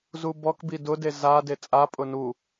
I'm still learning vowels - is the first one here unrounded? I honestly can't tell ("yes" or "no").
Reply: no